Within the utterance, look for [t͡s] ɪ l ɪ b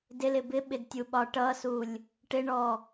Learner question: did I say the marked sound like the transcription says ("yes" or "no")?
no